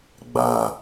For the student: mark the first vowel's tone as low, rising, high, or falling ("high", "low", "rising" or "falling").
low